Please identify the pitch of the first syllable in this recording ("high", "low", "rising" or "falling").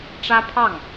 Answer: high